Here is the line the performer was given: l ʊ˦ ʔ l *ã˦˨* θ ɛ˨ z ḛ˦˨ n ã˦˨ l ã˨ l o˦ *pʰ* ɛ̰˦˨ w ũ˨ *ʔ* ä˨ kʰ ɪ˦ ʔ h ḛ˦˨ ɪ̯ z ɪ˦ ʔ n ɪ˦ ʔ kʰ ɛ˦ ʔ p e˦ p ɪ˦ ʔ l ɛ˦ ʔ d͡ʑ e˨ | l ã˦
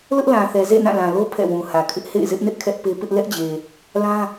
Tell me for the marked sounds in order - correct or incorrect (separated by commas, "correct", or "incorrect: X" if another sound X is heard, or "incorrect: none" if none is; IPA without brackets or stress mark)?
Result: incorrect: ã˨, correct, incorrect: h